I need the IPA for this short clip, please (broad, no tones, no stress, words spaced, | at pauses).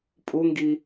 pʼuŋɡi